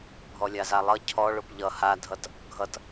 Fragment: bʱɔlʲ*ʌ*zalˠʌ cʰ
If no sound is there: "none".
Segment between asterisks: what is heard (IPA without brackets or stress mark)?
a